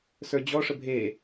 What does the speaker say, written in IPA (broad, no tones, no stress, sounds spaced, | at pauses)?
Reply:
s ə˞ d͡ʑ ɔ ʂ ə bʱ e